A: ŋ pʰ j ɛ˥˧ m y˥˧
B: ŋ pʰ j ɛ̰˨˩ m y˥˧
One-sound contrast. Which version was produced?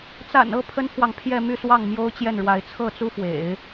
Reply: A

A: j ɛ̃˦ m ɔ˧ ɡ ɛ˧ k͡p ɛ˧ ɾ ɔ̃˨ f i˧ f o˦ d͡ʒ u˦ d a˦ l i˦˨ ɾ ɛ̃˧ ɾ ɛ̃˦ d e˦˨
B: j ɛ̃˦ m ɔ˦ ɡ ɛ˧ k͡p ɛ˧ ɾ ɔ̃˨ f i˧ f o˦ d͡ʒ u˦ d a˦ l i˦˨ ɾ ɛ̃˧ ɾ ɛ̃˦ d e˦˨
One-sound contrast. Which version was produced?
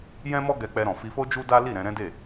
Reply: B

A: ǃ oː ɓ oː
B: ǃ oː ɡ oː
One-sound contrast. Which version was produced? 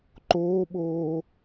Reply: A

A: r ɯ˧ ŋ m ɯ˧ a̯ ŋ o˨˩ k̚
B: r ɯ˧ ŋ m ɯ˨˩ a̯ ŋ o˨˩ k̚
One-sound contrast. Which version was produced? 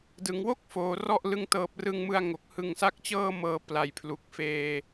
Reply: A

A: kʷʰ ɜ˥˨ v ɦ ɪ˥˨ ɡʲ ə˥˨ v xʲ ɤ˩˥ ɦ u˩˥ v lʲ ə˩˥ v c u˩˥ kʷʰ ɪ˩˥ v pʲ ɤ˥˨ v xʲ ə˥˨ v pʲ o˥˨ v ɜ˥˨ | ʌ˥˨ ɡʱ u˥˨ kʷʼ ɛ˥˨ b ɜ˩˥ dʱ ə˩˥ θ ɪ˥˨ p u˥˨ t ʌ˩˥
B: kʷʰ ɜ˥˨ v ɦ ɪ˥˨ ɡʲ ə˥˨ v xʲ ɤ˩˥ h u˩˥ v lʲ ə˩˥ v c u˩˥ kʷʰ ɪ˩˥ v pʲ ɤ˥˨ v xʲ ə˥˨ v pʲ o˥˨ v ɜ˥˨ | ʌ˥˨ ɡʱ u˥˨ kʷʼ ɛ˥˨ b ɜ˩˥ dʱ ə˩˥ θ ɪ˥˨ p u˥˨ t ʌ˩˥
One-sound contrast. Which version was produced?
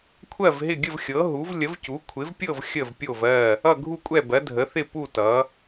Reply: A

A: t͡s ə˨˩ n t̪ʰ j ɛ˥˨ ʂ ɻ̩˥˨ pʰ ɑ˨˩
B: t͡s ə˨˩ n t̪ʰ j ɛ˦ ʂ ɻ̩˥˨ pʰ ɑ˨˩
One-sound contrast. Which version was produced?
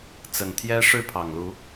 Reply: B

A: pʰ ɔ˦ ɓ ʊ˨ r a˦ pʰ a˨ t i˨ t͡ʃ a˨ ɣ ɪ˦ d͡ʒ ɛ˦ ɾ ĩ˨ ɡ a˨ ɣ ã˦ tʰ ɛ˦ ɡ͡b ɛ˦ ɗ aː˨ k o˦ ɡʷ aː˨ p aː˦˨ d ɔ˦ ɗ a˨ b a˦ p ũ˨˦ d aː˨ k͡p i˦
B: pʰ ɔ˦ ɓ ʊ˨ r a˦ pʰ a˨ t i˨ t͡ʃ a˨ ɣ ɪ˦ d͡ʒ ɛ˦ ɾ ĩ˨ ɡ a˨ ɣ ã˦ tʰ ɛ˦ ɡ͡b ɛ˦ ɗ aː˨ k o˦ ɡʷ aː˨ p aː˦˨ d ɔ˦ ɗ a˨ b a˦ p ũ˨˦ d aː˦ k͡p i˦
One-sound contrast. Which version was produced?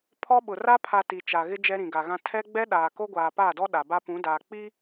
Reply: A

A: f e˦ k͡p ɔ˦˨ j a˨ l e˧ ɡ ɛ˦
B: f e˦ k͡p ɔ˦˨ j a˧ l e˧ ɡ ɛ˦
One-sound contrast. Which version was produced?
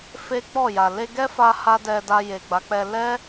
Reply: A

